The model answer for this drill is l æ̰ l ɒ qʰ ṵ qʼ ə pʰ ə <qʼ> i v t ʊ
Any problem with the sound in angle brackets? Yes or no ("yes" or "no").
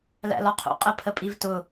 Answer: yes